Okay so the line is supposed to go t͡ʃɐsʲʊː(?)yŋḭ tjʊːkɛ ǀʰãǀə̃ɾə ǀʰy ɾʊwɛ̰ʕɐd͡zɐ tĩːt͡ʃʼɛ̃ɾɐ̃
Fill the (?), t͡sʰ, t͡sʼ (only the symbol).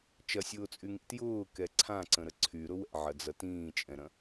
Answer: t͡sʼ